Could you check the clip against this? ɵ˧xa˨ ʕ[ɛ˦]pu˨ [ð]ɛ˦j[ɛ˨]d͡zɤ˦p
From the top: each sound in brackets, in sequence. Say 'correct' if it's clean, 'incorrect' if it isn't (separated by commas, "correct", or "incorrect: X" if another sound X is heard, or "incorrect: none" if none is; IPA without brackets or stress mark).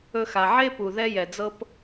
incorrect: e˦, correct, correct